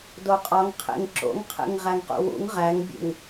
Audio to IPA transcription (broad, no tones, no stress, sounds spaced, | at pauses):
d o qʼ ɒ ŋ qʰ ḛ ŋ ǁ o̰ ŋ qʰ ḛ ŋ ʁ æ ŋ q ṵ w ṵ ŋ ʁ æ ŋ bʲ ṵ ŋ